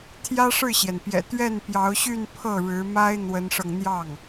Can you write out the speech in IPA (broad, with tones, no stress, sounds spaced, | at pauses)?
t̪ʰ j ä˥ ʂ ɻ̩˥˩ ɕ j ɛ˩ n p j ɛ̰˨˩ t̪ ɥ ɛ˥˩ n p j ɑ˧˥ ʊ̯ ɕ y˥˧ n pʰ ɤ˥˩ ɻ ɻ̩˧˥ m a˥ ɪ̯ n̪ w ə˧˥ n ʂ ɤ˧ ŋ n̪ j ɑ˥˩ ŋ